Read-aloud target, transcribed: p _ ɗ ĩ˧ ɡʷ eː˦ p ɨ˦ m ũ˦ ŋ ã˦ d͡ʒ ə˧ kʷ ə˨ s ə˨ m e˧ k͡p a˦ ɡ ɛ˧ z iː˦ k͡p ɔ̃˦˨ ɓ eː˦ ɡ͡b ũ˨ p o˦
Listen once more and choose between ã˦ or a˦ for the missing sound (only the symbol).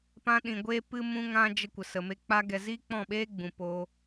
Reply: ã˦